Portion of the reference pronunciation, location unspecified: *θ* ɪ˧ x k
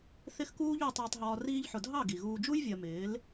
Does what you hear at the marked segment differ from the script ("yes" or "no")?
no